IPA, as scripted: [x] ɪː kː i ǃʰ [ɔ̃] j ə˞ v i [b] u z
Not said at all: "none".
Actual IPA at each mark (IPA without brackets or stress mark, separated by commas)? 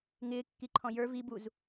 ŋ, ɔ̃, b